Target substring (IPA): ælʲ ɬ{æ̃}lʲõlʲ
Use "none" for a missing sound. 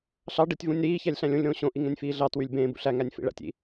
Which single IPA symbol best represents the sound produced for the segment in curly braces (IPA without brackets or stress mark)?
æ̃